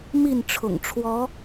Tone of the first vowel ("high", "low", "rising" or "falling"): falling